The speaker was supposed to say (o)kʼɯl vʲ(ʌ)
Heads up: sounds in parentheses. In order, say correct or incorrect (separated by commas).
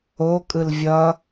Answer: correct, correct